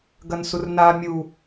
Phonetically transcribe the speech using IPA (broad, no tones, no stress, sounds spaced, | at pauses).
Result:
ɡ ɐ n s u r n a mʲ u